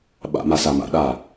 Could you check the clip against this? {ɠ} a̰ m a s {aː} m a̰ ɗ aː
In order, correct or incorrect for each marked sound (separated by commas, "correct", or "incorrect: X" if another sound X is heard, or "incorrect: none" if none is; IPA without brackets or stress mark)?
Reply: incorrect: ɓ, incorrect: a